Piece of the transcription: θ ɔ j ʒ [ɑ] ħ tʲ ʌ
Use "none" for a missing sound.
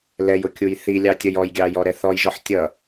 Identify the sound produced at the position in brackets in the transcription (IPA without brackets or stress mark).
ɔ